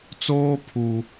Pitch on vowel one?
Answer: high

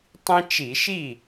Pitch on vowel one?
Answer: high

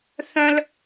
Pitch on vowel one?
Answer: high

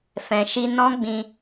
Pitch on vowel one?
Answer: low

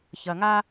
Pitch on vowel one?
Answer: low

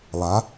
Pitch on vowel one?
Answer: rising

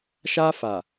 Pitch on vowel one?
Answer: high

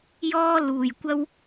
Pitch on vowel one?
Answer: high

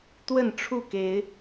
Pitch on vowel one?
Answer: falling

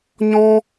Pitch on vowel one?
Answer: high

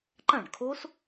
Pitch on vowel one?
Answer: falling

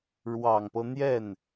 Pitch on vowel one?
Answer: low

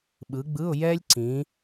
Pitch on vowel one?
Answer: rising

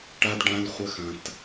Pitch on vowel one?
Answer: high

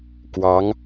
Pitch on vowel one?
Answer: rising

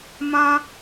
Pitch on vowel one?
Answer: high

